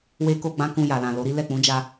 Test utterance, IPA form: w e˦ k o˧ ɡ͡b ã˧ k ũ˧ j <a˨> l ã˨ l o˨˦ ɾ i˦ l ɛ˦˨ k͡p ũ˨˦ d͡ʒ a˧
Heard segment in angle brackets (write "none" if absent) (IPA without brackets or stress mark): a˨